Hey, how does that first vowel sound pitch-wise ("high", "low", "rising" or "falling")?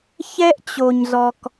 high